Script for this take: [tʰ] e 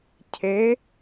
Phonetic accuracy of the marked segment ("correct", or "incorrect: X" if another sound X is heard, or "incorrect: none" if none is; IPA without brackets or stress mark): incorrect: cʰ